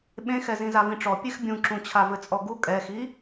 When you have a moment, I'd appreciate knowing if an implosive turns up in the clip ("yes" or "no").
yes